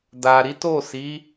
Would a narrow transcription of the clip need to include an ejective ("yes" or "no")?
no